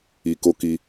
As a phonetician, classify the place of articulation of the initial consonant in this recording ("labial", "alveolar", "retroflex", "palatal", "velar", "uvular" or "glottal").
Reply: velar